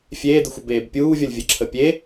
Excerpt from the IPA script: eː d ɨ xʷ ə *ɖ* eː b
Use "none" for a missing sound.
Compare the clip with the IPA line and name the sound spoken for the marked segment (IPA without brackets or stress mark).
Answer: b